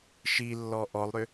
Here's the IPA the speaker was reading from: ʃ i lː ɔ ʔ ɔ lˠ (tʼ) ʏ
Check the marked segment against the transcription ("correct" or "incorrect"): incorrect